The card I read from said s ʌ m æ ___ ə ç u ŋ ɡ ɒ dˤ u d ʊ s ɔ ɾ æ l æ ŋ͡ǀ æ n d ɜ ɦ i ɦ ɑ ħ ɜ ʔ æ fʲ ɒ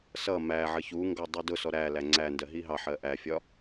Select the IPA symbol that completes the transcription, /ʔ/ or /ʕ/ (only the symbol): ʕ